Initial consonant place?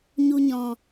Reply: palatal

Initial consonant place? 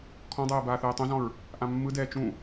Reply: velar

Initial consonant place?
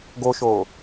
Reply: velar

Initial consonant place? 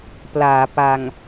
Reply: labial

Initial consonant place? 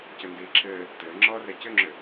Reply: palatal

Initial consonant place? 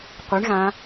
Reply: uvular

